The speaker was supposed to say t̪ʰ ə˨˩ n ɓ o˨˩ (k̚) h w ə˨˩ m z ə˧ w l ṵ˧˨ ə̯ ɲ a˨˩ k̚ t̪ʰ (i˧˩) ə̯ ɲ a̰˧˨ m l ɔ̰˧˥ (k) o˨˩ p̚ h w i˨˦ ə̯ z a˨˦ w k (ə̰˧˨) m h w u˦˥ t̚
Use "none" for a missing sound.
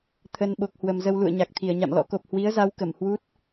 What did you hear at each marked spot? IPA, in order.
k̚, i˧˩, k, ə˧˩

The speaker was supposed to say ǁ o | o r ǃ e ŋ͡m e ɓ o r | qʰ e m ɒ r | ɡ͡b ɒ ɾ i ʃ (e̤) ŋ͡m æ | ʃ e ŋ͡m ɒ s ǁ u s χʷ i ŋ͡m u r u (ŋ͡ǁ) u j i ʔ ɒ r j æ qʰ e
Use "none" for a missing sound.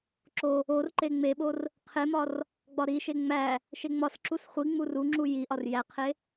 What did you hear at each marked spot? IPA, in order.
e, ŋ͡ǁ

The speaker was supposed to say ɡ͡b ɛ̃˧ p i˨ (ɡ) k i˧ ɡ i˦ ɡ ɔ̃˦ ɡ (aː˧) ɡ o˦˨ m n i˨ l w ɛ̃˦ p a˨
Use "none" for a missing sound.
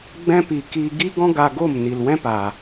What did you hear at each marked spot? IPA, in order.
none, a˧

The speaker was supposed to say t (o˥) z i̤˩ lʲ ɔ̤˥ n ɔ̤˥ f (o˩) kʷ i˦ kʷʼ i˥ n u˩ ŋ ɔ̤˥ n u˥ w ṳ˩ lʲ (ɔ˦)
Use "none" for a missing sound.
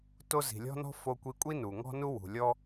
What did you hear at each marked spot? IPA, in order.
o˦, o˦, ɔ˦

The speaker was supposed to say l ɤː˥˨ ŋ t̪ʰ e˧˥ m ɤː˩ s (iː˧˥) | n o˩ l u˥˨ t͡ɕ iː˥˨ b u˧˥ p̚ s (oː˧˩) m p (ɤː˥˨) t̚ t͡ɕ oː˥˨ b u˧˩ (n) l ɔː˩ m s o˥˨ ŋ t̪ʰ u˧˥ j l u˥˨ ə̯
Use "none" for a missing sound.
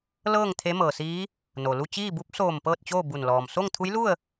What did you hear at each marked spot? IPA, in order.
iː˧˥, oː˧˩, ɤː˥˨, n

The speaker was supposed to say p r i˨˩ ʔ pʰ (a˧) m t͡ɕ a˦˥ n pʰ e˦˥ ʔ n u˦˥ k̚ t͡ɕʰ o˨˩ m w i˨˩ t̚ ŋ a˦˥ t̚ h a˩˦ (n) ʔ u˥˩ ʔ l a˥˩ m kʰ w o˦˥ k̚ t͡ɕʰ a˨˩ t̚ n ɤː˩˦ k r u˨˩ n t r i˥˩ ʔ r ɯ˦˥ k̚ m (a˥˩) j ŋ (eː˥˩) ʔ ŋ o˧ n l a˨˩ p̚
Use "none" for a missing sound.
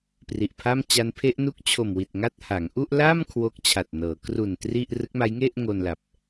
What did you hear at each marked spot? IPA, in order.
a˥˩, ŋ, a˦˥, e˥˩

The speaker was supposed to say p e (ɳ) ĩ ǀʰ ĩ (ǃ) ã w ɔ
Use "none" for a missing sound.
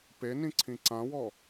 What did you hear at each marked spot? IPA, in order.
n, ǀ

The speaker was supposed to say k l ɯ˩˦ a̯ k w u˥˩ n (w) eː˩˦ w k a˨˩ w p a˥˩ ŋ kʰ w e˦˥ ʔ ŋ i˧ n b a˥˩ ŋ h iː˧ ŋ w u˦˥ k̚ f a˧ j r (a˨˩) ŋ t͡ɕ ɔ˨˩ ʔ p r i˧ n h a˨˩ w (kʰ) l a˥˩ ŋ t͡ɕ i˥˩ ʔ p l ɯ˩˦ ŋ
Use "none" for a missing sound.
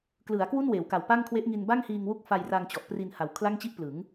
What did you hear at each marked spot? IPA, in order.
w, a˧, kʰ

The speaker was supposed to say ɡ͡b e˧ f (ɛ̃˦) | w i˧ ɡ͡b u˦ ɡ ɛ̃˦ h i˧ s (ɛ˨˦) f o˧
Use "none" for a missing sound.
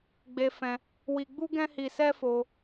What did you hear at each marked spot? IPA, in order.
ɛ̃˧, ɛ˦

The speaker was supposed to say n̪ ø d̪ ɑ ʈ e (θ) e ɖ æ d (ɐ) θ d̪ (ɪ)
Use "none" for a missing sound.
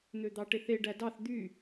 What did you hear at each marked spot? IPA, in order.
θ, ɑ, y

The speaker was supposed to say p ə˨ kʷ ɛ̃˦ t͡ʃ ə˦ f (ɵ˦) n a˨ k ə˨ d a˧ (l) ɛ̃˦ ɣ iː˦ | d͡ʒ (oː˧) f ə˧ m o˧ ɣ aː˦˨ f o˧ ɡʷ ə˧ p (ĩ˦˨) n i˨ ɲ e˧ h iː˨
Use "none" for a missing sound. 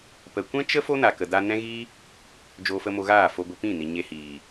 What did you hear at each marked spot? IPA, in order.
o˦, n, oː˧, ĩ˦˨

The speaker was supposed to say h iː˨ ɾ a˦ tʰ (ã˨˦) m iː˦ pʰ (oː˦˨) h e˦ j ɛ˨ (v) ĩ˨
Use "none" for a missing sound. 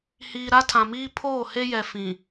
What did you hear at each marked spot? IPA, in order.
ã˨, oː˦˨, f

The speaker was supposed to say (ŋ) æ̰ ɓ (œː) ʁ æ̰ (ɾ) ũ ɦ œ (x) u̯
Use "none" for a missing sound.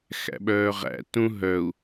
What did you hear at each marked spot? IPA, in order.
x, œː, t, none

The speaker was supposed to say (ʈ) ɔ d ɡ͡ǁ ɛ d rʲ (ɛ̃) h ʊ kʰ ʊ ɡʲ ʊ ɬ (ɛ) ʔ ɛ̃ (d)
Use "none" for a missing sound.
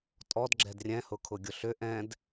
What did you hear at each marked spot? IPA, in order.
tʼ, ɛ̃, ʏ, d

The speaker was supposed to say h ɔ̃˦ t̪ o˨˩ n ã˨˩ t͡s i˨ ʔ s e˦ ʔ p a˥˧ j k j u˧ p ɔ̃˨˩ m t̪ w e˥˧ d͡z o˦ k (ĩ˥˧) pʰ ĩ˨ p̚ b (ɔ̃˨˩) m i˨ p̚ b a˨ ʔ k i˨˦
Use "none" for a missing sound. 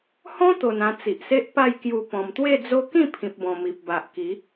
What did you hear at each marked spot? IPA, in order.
ĩ˥˧, ɔ̃˨˩

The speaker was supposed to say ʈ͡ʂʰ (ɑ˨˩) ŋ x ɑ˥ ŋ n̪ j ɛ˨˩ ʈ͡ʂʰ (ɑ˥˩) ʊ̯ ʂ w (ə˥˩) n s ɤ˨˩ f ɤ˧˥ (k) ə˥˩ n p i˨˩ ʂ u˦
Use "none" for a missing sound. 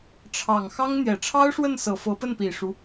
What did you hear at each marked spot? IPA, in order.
ɑ˨˩, ɑ˥, ə˥˩, p

